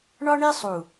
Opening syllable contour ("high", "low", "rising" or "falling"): high